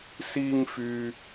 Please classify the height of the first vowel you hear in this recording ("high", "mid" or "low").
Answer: high